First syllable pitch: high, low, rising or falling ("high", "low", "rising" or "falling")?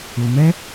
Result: low